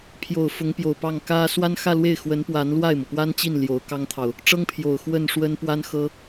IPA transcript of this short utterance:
pʰ j o˨˩ ʊ̯ f ʊ˧˥ ŋ p j o˨˩ ʊ̯ p ɑ˥˩ ŋ k ä˥ s w a˥ n x ä˥˧ l w e˥˩ ɪ̯ x w ə˧˥ n p w a˧˥ n l w a˥˩ ɪ̯ m ɤ˩ p w a˥ n t͡ɕ i˥˩ n l j o˧˥ ʊ̯ k ɑ˥ ŋ t̪ʰ ɑ˨ ʊ̯ | ʈ͡ʂ ɤ˥ ŋ pʰ j o˨˩ ʊ̯ x w ə˥˩ n ʂ w ə˥ n p w a˥ n x ɤ˥

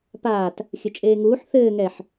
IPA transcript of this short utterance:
p aː t | xʲ ɘ t͡ʃʼ eː ŋ uː ħ θ ɘː ŋ ɛ ħ

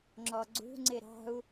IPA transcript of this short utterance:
ŋ͡ǁ ɔ ɡ͡ǀ ṳ ŋ͡ǀ ɪ ɾ ɑ̤ u̯

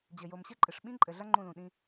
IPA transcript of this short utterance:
d͡ʑ ɘ˨ j o˨ m ɕ ɘ˦ ǃʼ ɨ˨ ʂ ɓ ĩ˦ ǃʼ ɘ˨ ɮ ɐ˦ ŋ͡ǃ ũ˦˨ l ũ˨ ɗ ĩ˦

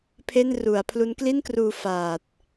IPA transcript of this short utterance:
pʰ e˥˩ n r u˩˦ a̯ pʰ l u˦˥ n k l i˥˩ n k r uː˧ f aː˨˩ t̚

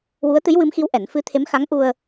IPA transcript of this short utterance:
w u˧˥ ə̯ t̪ ɨ˧˥ j w ɨ˧˥ m x i˧˥ w ʔ ɛ˨˩˦ n f ɨ˧˥ t̪ʰ e˧˥ m x a˧˥ ŋ ʔ u˧ ə̯

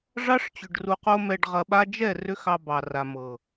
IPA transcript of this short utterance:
ʐ ɑ˦ ʂ t͡ɕ ʏ˨ ɖ r u˨ q o˧ m ɛ˨ ɖ ʁ ɐ˨ ɓ a˧ d͡ʒ ɛ˦˨ r ʏ˦ x ɑ˧ b ɑ˨ r a˨ m ɤ˨

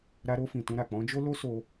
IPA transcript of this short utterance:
ɾ a˧ ɾ o˧ f ĩ˨ t ũ˧ ɾ a˨ k͡p ɔ̃˨˦ d͡ʒ o˦ l o˦ s o˧

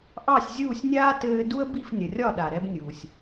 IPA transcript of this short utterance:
ʔ ɑ˥˩ sʲ zʲ uː˥˩ sʲ nʲ aː˥ t ɘː˧ d u˥ ə̯ b i˥˩ f nʲ ə˩ rʲ ɒ˥˩ ɗ a˩ ɾ ɛ˧ b nʲ uː˩ sʲ

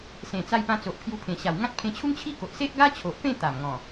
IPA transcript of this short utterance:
s ẽ˨˩ t͡s a˧ j p ã˧ t͡s o˨ ʔ pʰ j u˧ pʰ ẽ˨˩ ɕ a˨˩ w ŋ ã˦ t̚ pʰ ẽ˧ t͡ɕʰ u˦ ŋ t͡ɕʰ i˦ k o˨ ʔ s e˦ ʔ ɡ a˦ t͡ɕʰ o˨ ʔ p ẽ˥˧ t̪ a˨˩ m ŋ ɔ̃˨˩

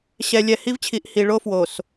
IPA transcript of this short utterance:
ɕ ɛ˨ lʲ ɛ˨ h i˦ v t͡ɕʰ i˨ ʔ h i˨ ɭ o˦ f w o˨ s

